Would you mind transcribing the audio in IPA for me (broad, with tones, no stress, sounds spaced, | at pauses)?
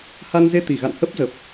h a˧ n z e˧ t̪ i˧˩ ɣ a̰˧˨ n h ə˦˥ p̚ z ə˨˩ p̚